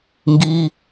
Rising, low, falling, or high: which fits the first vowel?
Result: high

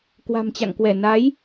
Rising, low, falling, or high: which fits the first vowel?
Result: low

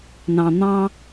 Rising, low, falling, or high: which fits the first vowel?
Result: low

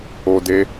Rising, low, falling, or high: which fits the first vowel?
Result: high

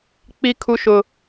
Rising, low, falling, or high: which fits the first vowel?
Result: high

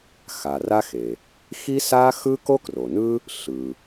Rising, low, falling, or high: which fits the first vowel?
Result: low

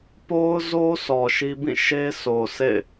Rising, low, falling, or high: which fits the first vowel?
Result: high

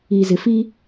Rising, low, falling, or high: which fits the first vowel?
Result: low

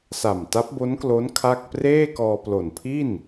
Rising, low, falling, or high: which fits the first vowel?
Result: low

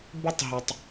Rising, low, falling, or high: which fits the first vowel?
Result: high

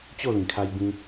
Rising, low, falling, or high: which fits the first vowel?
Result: falling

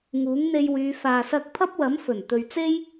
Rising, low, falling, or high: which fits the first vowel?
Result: rising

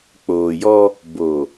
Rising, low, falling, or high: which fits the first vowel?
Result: low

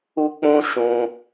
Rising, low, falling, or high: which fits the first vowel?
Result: high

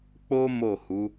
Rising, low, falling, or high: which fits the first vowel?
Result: high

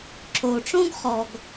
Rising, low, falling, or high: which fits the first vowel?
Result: low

